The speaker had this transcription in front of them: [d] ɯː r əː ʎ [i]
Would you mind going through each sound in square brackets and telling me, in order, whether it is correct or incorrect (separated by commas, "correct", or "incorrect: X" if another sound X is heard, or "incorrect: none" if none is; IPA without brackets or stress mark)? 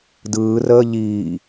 correct, incorrect: iː